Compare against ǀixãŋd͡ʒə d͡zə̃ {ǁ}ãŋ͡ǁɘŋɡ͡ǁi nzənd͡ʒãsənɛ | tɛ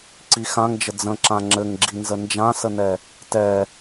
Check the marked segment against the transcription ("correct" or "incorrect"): correct